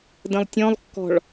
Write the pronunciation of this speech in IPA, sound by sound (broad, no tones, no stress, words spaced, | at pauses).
də̃lˠtʲɔ̃lˠkːɔ̤ɭ